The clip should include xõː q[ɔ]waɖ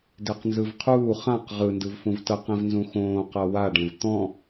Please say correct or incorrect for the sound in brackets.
incorrect